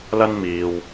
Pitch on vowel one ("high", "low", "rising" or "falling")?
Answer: high